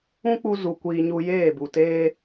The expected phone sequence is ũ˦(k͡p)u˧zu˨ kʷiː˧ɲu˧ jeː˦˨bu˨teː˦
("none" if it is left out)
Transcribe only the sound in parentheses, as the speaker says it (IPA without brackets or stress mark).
k͡p